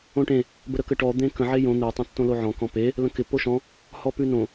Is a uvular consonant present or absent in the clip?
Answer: absent